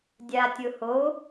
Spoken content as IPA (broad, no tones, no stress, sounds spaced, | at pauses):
dʲ a tʲ ʊ h o